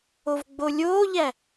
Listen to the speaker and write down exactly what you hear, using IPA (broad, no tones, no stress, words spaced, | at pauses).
ovɡ͡bolʲoːʎæ